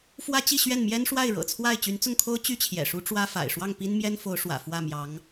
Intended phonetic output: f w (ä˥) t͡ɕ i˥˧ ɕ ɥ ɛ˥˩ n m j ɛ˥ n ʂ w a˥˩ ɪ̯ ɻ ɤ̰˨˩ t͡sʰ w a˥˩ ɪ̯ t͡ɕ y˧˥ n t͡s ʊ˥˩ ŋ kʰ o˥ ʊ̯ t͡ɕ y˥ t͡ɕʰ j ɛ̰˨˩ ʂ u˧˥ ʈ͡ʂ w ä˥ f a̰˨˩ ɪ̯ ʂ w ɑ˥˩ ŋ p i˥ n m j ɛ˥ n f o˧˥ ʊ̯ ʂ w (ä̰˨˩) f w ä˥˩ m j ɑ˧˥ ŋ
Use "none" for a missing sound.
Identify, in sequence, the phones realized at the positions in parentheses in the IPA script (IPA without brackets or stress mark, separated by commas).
ä˥, ä̰˨˩